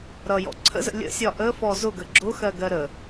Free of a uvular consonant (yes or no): yes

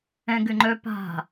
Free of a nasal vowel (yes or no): no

